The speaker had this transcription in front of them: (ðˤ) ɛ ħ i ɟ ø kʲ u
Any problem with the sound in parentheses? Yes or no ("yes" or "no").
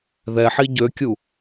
yes